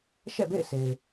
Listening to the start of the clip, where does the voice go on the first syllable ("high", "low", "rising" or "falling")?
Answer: falling